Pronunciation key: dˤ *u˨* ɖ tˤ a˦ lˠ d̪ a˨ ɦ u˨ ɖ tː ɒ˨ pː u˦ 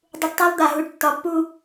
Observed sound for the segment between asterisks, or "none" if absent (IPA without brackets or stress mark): u˨